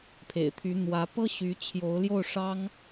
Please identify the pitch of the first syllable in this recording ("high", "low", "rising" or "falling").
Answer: low